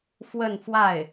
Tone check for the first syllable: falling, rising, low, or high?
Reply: falling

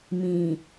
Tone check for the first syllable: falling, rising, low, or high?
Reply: low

